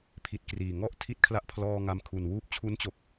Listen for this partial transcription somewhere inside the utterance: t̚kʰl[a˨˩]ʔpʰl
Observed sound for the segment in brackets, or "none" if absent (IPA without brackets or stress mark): a˦˥